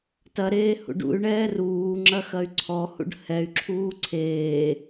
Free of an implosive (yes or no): yes